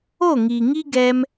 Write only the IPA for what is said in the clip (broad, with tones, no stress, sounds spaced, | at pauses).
o˦˨ ŋ i˨ ŋ i˦ ɡ ɛ˧ m